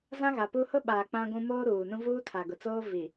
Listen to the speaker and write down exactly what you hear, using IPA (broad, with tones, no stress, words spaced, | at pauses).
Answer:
zã˦ɣa˨pu˦ hʊ˦ɓaː˨ k͡pã˦ɡʷũ˦ moː˦ɾuː˨nũ˦ vuː˦tʰa˨ɡʊ˨t͡soː˦ vi˨